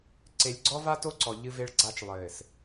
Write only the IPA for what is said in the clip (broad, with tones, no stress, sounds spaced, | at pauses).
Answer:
ǀ e˨ lʲ ɡ͡ǀ ɔ˦ v a˦ t o˦ ǀ ɔ˨ ʎ ɨ˦ v e˦ ɭ ɡ͡ǀ a˦ t͡ʃ lˠ ɘː˨ s